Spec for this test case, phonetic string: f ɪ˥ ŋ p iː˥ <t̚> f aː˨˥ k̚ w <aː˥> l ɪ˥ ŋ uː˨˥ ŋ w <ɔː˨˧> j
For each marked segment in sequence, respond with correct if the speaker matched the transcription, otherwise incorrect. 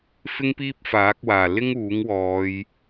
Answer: incorrect, incorrect, correct

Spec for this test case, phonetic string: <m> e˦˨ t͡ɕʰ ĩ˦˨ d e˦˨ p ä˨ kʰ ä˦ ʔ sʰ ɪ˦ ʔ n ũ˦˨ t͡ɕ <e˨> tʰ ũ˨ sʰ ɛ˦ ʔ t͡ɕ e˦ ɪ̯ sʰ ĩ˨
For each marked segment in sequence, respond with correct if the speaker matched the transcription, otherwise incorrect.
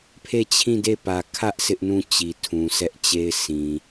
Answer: incorrect, incorrect

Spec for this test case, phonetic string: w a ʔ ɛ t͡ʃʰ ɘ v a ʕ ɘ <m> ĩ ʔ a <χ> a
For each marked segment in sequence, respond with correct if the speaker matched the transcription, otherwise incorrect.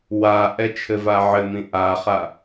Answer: correct, correct

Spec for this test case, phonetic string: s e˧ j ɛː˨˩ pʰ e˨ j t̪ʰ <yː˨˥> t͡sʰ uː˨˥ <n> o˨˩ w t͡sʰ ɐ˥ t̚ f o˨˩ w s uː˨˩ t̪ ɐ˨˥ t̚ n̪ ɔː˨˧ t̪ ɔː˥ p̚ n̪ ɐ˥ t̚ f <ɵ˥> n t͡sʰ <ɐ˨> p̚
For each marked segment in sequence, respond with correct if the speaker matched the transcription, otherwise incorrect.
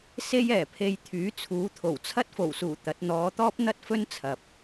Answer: correct, incorrect, correct, correct

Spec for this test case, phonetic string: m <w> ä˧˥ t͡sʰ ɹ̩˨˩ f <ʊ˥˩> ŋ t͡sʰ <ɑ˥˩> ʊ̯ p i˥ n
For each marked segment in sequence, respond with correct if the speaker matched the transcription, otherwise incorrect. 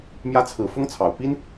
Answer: incorrect, incorrect, incorrect

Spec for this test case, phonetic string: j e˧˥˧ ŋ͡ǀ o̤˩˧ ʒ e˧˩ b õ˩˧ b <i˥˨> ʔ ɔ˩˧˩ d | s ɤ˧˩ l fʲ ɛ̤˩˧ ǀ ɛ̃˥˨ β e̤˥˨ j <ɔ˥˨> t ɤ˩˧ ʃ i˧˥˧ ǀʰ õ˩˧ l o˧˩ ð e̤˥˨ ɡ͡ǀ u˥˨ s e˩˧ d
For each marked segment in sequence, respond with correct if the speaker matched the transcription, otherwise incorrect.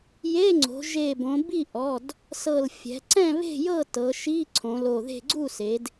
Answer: correct, incorrect

